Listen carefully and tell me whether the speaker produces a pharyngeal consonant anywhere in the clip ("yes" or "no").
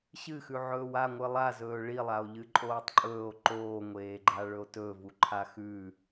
yes